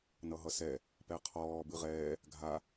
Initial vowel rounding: unrounded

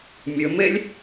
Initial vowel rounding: rounded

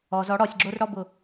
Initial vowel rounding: rounded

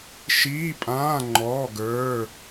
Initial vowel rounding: unrounded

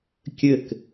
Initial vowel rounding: unrounded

